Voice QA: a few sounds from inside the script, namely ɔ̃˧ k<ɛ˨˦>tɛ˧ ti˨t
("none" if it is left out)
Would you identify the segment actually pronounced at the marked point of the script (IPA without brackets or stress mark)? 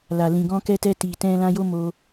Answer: ɛ˧